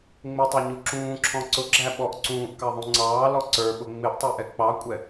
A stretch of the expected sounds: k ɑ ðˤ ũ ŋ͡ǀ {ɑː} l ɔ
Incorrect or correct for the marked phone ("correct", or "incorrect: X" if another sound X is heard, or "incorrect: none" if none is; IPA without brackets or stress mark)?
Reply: correct